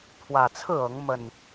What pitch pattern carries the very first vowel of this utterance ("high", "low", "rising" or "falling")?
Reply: low